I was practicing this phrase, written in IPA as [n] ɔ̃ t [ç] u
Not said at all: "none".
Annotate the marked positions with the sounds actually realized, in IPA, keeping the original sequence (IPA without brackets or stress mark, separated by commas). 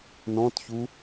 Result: n, ç